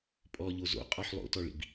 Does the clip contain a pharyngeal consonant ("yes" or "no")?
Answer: yes